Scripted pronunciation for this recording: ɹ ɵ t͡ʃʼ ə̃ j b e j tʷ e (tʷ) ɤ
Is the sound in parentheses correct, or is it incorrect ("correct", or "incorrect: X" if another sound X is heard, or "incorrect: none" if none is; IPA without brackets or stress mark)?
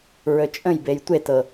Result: incorrect: t